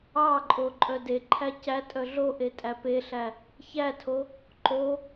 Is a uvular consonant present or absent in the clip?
absent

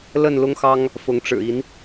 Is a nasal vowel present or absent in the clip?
absent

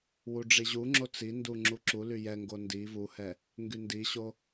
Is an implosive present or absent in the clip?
absent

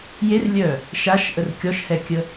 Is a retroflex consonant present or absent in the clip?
absent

